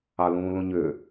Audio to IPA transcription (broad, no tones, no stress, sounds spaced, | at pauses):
ɑ l ũː l ũ ɲ ʏ